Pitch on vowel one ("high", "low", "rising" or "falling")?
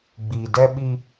low